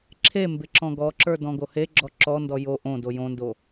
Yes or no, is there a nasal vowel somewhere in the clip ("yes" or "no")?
yes